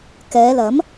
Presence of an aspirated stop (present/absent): absent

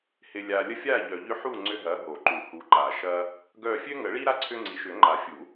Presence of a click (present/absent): present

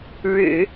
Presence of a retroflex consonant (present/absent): present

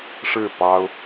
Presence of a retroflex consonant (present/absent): present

